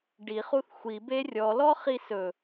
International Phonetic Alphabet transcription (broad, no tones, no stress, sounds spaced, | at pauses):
ɖ i χ u θ xʷ i b e rʲ ɔ l ɔ χ i s ɵ